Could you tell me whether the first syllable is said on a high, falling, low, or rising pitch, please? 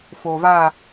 low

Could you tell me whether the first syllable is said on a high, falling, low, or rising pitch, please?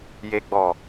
low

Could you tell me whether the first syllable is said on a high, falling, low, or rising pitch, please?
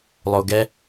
low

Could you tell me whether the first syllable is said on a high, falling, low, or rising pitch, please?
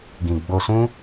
low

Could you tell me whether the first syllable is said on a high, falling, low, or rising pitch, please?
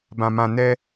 low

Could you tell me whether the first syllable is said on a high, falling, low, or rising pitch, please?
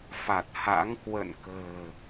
low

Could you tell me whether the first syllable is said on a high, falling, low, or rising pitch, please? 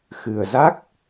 low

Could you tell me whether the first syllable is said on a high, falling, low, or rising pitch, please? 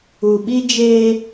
low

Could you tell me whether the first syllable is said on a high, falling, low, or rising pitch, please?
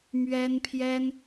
high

